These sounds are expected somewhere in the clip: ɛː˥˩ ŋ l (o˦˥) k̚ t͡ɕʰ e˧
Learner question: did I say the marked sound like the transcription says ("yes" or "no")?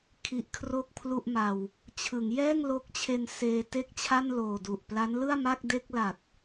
yes